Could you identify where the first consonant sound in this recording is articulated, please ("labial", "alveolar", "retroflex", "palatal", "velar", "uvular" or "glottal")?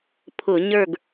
labial